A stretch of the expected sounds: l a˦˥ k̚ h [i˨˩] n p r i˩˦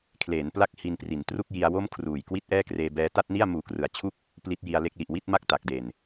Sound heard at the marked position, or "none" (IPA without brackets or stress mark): i˧